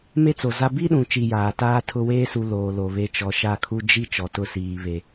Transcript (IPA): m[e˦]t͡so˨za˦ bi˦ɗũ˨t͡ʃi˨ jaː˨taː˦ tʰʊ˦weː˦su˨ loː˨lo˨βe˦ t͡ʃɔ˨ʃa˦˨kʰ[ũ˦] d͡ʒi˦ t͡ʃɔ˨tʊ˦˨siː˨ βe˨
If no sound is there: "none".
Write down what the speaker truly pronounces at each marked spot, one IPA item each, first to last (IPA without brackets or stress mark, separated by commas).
e˦, u˦